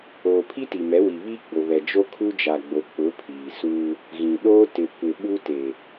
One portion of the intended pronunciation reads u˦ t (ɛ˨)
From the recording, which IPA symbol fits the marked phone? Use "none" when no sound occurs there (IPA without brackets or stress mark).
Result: e˨